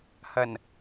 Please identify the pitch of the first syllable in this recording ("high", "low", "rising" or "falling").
low